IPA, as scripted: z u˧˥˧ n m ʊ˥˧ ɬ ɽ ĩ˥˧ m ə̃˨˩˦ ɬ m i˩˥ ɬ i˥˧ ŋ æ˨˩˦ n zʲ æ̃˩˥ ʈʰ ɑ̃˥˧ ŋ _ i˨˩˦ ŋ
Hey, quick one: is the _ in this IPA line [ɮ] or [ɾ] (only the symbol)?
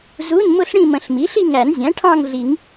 ɮ